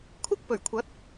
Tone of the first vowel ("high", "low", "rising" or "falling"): high